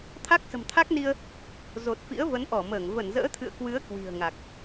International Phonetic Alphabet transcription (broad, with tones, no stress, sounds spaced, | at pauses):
t̪ʰ a˦˥ k̚ s ə̤˨˩ m t̪ʰ a˦˥ k̚ n i˧ ə̯ | z o˨˩ t̚ f ḭ˧˥ ə̯ v ə˨˦ n ʔ ɔ˧˩ m əː˧˩ ŋ v ə˧˩ n z ə̰ː˧˥ t̪ʰ ɨ̰˧˨ ə̯ k w ɨ˨˦ ə̯ k w i̤˨˩ ə̯ ŋ a˨˩ k̚